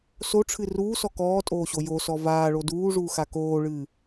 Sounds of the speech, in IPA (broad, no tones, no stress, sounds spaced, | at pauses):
s o ʈ͡ʂʰ ɨ r uː s ɔ k ɔː tʼ oː ɕ o j o s ɔ v aː ɭ o d uː ʐ uː x a k oː ɭ ɨː